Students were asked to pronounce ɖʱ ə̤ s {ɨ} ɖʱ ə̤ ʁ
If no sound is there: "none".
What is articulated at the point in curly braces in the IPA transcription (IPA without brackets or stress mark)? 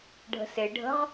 e